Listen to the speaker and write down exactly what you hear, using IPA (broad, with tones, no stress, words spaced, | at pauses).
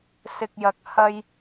sɪ˨k̚jɐ˨k̚ hɐ˧j